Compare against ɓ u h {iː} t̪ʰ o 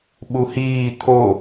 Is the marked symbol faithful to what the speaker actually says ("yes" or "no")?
yes